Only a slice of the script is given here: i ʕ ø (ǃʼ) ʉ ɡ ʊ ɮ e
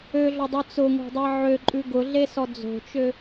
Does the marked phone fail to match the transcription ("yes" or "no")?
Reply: no